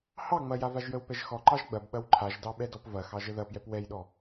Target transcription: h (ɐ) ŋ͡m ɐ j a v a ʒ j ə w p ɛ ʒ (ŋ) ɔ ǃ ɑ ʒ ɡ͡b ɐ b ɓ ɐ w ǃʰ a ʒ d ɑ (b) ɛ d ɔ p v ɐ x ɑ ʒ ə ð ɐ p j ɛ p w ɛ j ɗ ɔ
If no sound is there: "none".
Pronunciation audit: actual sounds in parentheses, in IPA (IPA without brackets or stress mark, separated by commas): ɑ, x, ɓ